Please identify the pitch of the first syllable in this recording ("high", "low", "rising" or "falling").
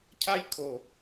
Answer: high